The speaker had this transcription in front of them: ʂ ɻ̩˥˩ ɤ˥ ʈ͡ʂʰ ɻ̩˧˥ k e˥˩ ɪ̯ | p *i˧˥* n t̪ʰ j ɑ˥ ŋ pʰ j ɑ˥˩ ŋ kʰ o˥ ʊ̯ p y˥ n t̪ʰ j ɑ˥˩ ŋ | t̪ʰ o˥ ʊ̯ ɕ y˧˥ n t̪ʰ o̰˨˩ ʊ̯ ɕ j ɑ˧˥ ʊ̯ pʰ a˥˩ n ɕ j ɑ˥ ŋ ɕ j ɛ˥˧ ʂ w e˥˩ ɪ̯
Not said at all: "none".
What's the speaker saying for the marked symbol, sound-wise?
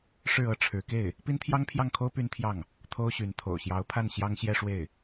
i˥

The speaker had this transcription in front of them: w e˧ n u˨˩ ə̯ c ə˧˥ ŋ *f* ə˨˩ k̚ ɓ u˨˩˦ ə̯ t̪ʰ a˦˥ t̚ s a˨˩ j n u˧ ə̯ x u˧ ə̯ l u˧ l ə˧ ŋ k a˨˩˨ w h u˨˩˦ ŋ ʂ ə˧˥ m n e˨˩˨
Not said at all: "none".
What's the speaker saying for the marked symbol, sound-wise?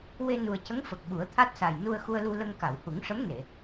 f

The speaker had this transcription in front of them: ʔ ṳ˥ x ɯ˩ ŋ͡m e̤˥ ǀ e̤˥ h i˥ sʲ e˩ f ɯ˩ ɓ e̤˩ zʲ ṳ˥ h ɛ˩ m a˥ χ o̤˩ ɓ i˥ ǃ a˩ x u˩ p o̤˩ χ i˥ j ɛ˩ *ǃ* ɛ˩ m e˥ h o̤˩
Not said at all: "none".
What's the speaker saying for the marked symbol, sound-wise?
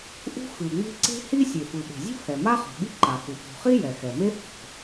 x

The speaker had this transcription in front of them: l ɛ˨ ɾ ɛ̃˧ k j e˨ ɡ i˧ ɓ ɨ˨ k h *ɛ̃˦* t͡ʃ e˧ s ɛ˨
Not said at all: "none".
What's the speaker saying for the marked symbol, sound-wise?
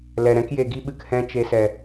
ɛ̃˦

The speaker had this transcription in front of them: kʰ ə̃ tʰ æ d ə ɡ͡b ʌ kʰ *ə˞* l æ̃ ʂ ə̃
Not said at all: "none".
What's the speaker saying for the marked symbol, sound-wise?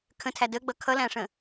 ʌ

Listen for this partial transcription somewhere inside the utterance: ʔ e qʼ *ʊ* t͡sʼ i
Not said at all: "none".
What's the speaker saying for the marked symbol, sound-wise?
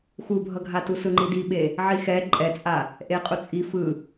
u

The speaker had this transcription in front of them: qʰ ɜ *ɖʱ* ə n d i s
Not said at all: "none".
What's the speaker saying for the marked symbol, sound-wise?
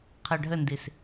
ɖʱ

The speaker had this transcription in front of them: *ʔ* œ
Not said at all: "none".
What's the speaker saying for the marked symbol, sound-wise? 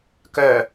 k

